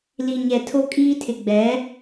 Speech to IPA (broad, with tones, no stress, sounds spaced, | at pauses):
l i˨ ɲ ɛ˨ tʰ o˦ kʼ iː˦ tʰ ɪ˨ ɡ͡b ɛ˨˦